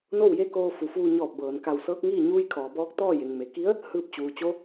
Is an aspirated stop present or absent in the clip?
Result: present